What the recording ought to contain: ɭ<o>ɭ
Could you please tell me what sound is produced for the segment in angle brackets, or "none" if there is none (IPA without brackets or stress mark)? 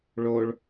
o